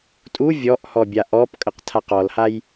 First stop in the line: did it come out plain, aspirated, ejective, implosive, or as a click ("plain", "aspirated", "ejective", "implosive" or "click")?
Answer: ejective